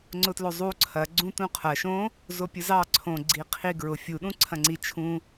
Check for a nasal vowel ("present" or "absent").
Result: present